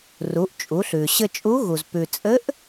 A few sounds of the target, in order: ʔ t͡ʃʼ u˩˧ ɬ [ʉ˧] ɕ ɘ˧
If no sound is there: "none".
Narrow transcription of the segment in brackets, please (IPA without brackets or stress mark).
ʉ˩